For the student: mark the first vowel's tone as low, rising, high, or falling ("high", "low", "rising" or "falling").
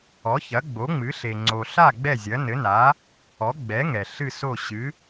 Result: rising